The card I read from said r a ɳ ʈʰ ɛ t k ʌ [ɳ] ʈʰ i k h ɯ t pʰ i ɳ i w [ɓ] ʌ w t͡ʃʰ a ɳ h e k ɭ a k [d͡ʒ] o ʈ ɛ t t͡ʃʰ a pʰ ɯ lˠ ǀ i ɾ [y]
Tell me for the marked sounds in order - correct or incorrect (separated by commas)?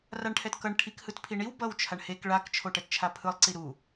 correct, incorrect, incorrect, incorrect